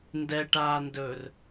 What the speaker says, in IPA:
n d ɛ ʈ aː n d ɵː r

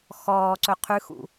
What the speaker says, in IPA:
x ɔː ǀ ɵ qʰ ʉ x ṵ

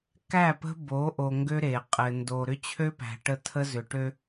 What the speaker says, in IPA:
k æ˦˨ p ə̤˦ b o˨˦ ʔ o˨ ŋ ɡ ø˦ ɾ e˨ qʼ ɘ˨ n d o˨ ɾ ʏ˦ t͡ɕʰ ø˦ p æ̤˨ ʈ ə˦˨ tʰ ə˦ z ʏ˨ ʈ ø˦

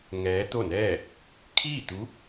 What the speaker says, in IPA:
ŋ ɛː˧˥ t̪ o˥˨ n ɛː˥˨ | kʰ iː˥˨ t̪ u˧˥

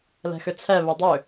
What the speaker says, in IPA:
l ɛ̤ x ʏ t͡sʰ ɛ β ø dˤ ʏ

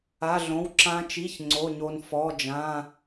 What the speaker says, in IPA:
a˧˥˧ ɮ õ˧˥˧ w ǁ ã˦˥ t͡ʃ i˧˥˧ ç ŋ͡ǀ o˧˥˧ ɲ o˦˥ n f ɔ˧˥˧ d͡ʒ ã˧˥˧

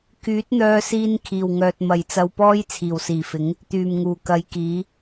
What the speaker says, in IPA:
k yː˨˥ t̚ n̪ œː˧ s iː˧ n kʰ iː˨˩ w ŋ œː˨ t̚ m ɐ˨ j t͡s ɐ˧ w p ɔː˥ j t͡sʰ iː˨˩ w s iː˨˩ f ɪ˨˥ ŋ | t̪ yː˨˩ m ŋ uː˨˩ k ɐ˨˧ j k iː˨˥

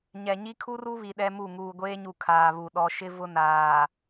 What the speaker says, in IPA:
ɲ ɛ˨ ɲ i˦ kʰ u˦ r u˦ β i˨ ɗ ɛ˦ m u˦˨ ŋ uː˨ ɡʷ eː˦ ɲ u˨ kʰ aː˨ β u˨ ɗ ɔ˨ ʃ ɪ˦ v ʊ˦ n aː˨

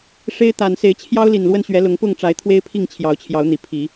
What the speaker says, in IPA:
ʂ e˦ ɪ̯ t̪ a˨˩ n s e˨˦ ɪ̯ t͡ɕʰ j ɑ˦ ʊ̯ l i˨˩ n l w ə˥˨ n ɕ ɥ ɛ˨˦ l ʊ˨˦ ŋ p ʊ˥˨ ŋ ʈ͡ʂ a˨˦ ɪ̯ t̪ʰ w e˦ ɪ̯ pʰ i˥˨ ŋ t͡ɕʰ j ɑ˨˦ ʊ̯ t͡ɕʰ j ɑ˨˦ ʊ̯ n̪ i˨˩ pʰ i˨˦

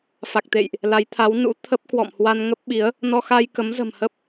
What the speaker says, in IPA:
f a˨˩ k̚ t̪ ḛ˧˨ j ʔ | l a˨˦ j t̪ʰ a˨˦ w n ṵ˧˥ t̪ʰ ə˦˥ p̚ k w ɔ̰˧˨ m h w a˧ n ŋ ə˦˥ p̚ ɓ i˨˦ ə̯ | n ɔ˧ x a˧ j k ə˨˦ m z ə̤˨˩ m h ə˦˥ p̚

